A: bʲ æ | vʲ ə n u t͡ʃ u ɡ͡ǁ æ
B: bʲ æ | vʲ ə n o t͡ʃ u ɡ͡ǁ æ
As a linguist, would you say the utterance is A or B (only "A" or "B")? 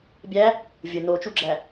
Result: B